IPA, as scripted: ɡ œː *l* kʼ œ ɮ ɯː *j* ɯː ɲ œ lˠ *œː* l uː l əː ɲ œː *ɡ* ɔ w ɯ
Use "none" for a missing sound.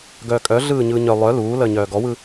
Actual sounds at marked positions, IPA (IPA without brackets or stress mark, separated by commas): none, ɲ, œ, ɡ